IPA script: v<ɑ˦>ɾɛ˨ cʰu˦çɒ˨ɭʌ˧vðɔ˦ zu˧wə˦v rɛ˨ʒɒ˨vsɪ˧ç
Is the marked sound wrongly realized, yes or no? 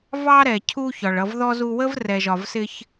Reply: no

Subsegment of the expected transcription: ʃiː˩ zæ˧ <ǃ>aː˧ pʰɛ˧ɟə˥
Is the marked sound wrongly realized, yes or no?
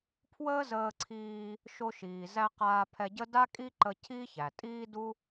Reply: yes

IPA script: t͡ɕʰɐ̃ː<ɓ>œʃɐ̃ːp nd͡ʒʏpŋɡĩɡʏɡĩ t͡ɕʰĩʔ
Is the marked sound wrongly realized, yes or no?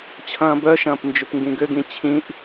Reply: yes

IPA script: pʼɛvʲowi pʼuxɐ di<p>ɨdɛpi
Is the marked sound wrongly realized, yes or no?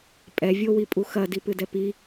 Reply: no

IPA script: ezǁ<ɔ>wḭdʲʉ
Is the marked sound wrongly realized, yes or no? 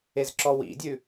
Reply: no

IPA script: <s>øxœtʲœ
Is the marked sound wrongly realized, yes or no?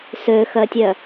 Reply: no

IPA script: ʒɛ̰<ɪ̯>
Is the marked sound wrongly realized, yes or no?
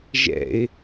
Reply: no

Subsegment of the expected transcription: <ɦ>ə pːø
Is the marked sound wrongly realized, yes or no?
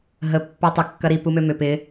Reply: no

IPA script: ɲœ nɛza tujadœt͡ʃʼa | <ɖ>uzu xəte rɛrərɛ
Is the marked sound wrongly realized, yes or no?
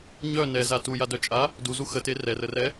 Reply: yes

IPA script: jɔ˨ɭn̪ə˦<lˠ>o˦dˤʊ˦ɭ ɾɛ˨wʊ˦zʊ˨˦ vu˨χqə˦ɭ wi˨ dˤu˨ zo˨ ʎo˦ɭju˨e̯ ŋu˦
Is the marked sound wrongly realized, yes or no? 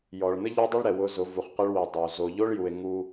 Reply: yes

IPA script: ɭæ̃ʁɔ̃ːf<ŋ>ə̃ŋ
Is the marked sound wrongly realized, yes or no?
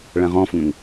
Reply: no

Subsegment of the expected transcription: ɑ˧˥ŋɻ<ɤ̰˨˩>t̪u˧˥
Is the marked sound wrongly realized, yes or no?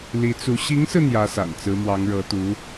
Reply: yes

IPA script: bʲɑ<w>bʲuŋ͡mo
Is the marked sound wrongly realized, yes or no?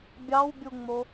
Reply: no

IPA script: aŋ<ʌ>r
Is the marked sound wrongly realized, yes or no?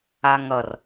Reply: no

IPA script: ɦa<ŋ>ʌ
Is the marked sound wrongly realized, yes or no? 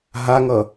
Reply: no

